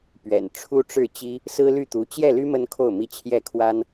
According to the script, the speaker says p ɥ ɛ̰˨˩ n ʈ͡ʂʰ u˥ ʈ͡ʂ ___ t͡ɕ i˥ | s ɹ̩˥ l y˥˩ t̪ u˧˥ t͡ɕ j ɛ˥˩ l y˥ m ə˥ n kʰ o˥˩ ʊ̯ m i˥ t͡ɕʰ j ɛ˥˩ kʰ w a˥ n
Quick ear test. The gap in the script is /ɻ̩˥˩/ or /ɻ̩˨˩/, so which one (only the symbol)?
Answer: ɻ̩˥˩